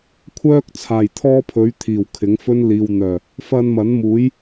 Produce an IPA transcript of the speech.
kʷʰ œː˥ k̚ t͡sʰ aː˨˩ j t̪ʰ ɔː˥ pʰ ɵ˨˥ ɥ t̪ʰ iː˨˩ w kʰ ɪ˨˥ ŋ f ɵ˥ n l iː˨ w n̪ œː˨˩ | f ɐ˧ n m ɐ˨˥ n m uː˨˥ j

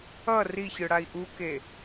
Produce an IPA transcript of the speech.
ʌ r i ç ɯ ɽ a i̯ ʔ u k e

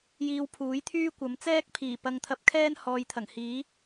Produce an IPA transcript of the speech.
j iː˧ w pʰ uː˨˥ j t̪ʰ yː˥ kʷ ɐ˨˥ m t͡s ɛː˥ k̚ pʰ iː˨˩ p ɐ˧ ŋ t̪ʰ ɐ˧ p̚ kʰ ɛː˥ n h ɔː˨ j t̪ʰ ɐ˨˩ ŋ h iː˨˥

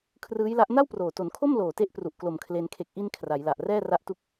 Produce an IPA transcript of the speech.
kʰ r ɯː˦˥ j l a˦˥ ʔ n a˥˩ w p r oː˨˩ t o˩˦ n kʰ o˥˩ m l oː˨˩ t e˦˥ ʔ p r u˨˩ ʔ k l o˨˩ m kʰ l e˧ n kʰ e˨˩ k̚ ʔ i˧ n kʰ r a˩˦ j l a˨˩ ʔ r ɛː˥˩ r a˥˩ ʔ t u˥˩ k̚

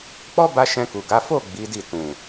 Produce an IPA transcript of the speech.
k͡p ɔ˦ b a˧ ʃ ɛ̃˧ k u˨ ɡ a˨˦ f o˦˨ ɡ͡b i˨˦ d i˦˨ t ũ˨

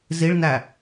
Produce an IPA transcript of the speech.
z i ɭ n æ

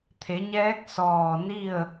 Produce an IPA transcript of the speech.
t̪ʰ e˩˧ ɲ ɛː˧˥ k̚ s ɔː˧˩ n i˥˨ ə̯

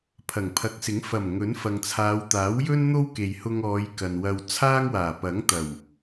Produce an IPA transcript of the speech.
pʰ ɐ˨˩ ŋ pʰ ɐ˨˥ k̚ s ɪ˨˥ ŋ f ɐ˨˩ m ŋ ɵ˨˥ n f ɐ˨ ŋ t͡sʰ aː˨˧ w t̪ aː˨˥ w j ɵ˥ n n̪ o˥ w k e˨ j h ʊ˧ ŋ ɔː˨˧ j k ɐ˨ n w ɐ˧ w t͡sʰ aː˥ ŋ w aː˨˩ p ɐ˨˥ ŋ t̪ ɐ˨˩ w

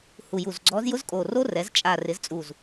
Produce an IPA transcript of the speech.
h u˧˩ j u˧˩ z ɡ͡ǀ ɔ˧˥ z j ʊ˥ z kʼ o˧˩ r o˥ r ɛ˩˥ z t͡ʃʼ a˧˩ r ɪ˩˥ z t͡sʼ u˧˩ z

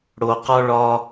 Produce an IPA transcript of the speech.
ɽ o˦ q ɒ˥ ɭ ɒ˥

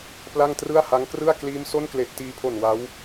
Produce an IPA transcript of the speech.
p l a˥˩ ŋ t r ɯ˥˩ a̯ h a˦˥ ŋ k r ɯ˥˩ a̯ k l iː˦˥ m s o˥˩ n k l e˨˩ ʔ t iː˧ pʰ o˨˩ n w a˦˥ w

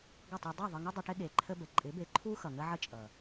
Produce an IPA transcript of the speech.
ɡ ʌ˦˨ tˤ e˧ dˤ u˦˨ ðˤ ə˧ ŋ ɪ˦ dˤ ɪ˧ ʈ ɪ˦ ɠ e˨ ǃʰ ə˦ b ə˨ ǃʼ ɪ˨˦ b e˨ ǃʰ u˦ x ʌ˨ ŋ ə˦ ʕ ə˦ t͡ʃʼ ʌ˨

